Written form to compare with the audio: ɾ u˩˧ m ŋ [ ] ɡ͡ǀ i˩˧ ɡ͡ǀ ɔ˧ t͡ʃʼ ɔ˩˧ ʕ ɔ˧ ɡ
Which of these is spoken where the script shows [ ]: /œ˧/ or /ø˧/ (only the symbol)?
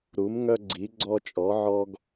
œ˧